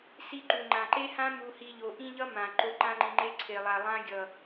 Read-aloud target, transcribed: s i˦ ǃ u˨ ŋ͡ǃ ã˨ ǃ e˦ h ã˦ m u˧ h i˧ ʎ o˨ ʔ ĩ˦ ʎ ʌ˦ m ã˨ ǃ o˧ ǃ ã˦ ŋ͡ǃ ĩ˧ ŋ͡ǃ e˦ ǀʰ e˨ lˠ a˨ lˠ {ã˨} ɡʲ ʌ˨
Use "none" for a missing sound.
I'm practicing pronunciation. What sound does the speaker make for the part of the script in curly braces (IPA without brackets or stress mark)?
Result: ã˦